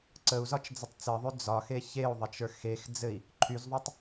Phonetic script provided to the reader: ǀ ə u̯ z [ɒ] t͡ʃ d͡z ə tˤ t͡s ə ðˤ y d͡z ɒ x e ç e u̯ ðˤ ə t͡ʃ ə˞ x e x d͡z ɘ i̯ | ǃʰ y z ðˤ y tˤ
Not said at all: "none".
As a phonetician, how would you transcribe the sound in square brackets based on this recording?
ɒ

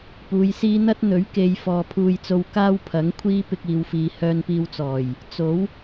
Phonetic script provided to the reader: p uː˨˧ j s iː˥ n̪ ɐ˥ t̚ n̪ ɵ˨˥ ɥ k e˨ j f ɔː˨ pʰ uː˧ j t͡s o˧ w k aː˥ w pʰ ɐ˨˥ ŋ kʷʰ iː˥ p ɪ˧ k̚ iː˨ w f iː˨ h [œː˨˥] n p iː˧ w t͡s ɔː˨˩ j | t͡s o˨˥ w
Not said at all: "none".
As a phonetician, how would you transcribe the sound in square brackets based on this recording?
œː˧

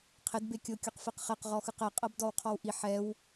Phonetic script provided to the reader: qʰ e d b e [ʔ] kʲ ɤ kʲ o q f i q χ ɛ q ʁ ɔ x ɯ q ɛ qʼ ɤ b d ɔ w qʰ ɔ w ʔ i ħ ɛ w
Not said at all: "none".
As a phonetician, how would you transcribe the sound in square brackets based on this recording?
none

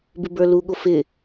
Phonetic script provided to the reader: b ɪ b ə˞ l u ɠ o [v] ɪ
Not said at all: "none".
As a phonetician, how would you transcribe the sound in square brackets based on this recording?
f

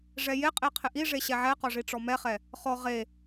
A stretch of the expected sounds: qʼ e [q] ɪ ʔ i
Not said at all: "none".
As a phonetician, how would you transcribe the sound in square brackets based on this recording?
qʰ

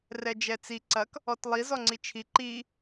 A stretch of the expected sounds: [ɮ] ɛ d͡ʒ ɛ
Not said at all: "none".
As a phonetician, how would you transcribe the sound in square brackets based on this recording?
r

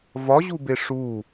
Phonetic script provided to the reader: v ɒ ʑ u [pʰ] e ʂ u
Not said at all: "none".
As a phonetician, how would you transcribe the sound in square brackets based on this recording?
b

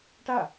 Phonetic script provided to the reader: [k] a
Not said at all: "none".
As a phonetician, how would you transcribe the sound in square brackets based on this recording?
ʈ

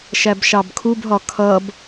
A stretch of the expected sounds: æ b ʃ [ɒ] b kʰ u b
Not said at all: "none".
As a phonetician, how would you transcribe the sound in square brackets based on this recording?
ɑ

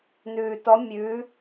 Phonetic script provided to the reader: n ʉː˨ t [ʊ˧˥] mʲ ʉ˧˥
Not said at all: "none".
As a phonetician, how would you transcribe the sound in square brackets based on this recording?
ɔ˧˥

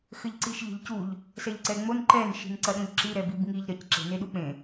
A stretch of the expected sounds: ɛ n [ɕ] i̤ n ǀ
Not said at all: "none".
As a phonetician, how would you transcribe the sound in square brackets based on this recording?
ʃ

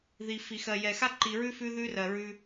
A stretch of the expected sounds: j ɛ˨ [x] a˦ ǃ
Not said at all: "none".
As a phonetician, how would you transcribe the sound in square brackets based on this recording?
x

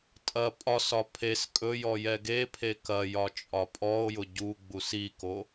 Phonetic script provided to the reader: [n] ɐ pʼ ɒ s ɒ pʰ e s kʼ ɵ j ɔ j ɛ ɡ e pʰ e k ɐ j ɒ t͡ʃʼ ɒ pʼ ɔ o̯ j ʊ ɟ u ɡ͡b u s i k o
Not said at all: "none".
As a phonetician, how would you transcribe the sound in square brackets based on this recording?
tʼ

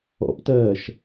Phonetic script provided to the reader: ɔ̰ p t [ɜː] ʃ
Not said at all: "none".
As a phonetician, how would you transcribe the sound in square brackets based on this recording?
ɜː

